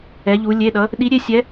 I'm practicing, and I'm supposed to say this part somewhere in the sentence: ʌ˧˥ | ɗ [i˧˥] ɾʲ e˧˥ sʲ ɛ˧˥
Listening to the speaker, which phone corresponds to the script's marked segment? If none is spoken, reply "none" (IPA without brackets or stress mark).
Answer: i˧˥